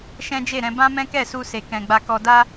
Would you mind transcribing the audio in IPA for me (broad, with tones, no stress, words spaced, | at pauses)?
ʃɛ̃˦d͡ʒe˦˨ɾɛ̃˨˦ bã˦mɛ̃˦kɛ˦˨su˧ se˨kɛ̃˨ɡ͡ba˧kɔ˧ da˦